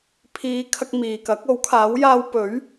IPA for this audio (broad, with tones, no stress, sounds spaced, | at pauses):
pʰ iː˨˧ kʰ ɐ˧ k̚ m iː˨ k ɐ˨˥ k̚ o˨˥ w kʰ aː˨˥ w j aː˧ w p ɵ˨˥ ɥ